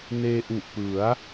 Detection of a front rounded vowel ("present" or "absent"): absent